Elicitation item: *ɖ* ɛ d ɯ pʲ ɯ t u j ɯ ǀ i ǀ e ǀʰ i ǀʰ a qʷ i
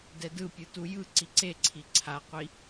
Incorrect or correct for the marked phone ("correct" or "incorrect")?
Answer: incorrect